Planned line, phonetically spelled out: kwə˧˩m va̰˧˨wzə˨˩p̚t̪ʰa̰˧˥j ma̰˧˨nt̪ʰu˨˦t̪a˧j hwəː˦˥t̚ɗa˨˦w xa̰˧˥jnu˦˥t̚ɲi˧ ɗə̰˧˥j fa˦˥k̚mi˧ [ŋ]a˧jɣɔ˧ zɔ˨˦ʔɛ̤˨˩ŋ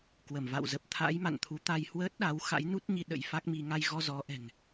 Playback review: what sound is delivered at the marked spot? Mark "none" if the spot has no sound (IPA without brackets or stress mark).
ŋ